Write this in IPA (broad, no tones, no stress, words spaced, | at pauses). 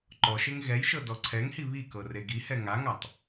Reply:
ǃɔʃeŋ ɣɛjʃɤ dɔǀʰɛŋhi βikɤ reɡihɛ ŋaŋatˤ